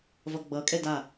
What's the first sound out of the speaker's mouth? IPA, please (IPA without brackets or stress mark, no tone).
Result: v